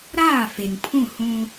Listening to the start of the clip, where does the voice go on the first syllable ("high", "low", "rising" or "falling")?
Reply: falling